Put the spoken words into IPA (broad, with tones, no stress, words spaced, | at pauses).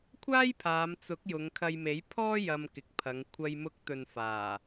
kʷʰaː˥jpʰaː˨˧mt͡sʊ˨˥k̚ jʊ˨˧ŋkʰɐ˧jme˨˥j pʰɔː˥ jɐ˧mkɪ˨k̚pʰɐ˨˧ŋ kʷʰɐ˧jmʊ˧k̚t̪ɵ˨n faː˨˩